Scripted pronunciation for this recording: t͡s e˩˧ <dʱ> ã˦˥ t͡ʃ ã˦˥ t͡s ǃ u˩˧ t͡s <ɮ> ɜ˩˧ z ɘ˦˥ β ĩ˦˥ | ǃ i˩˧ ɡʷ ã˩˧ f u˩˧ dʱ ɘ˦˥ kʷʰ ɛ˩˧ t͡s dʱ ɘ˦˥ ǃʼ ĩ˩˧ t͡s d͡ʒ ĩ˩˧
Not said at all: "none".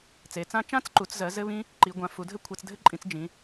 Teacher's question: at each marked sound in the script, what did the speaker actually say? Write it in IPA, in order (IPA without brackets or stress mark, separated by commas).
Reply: t͡s, z